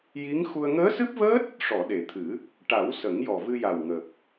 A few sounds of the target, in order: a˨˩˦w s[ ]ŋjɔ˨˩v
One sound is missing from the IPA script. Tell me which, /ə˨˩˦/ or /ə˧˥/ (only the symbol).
ə˨˩˦